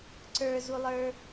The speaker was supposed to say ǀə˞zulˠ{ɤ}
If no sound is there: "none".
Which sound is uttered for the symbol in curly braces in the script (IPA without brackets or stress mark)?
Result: ə˞